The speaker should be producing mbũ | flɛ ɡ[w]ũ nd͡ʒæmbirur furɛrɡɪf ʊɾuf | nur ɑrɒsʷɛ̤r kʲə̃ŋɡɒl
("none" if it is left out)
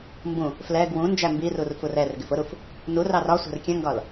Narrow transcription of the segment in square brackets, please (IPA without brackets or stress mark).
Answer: w